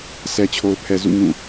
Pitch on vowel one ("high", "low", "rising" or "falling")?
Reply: low